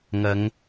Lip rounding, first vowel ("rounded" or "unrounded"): unrounded